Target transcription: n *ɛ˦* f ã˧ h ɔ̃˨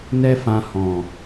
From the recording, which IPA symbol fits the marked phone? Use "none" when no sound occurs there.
ɛ˦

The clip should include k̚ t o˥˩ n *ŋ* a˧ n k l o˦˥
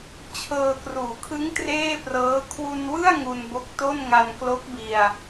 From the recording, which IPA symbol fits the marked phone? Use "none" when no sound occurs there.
ŋ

